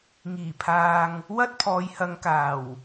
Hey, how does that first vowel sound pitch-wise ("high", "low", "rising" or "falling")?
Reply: low